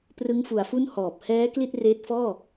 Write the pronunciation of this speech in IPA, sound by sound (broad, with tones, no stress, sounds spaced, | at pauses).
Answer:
p r ɯ˦˥ ŋ f u˨˩ a̯ f u˥˩ n h ɔː˨˩ p̚ h ɛː˦˥ k l i˥˩ t̚ r eː˦˥ t̚ f ɔː˥˩